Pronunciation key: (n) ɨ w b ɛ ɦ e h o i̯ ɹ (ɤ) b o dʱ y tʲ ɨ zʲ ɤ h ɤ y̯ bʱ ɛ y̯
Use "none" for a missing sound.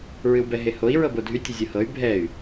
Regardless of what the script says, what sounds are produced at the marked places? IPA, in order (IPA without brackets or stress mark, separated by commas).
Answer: ɹ, ɤ